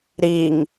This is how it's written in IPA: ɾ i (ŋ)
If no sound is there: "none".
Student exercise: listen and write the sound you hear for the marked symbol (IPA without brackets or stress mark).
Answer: ŋ